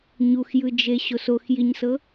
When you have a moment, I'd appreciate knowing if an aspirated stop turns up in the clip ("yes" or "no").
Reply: no